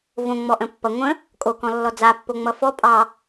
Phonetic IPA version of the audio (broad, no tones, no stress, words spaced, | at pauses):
võ ŋ͡mɔʔə̃pːʌ ŋʷə̃ | kʼokɔ̃lːɔ d͡zapːo ŋ͡mʌfɔ pʼɑ